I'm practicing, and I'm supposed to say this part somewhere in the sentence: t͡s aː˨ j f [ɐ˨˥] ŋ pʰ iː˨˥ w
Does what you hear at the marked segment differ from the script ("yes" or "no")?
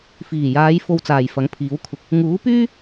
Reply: no